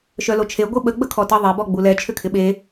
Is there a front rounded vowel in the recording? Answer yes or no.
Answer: yes